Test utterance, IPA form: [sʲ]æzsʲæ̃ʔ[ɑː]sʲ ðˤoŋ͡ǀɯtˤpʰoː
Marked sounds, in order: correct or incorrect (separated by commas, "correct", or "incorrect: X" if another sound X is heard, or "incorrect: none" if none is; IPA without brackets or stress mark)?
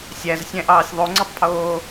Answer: correct, correct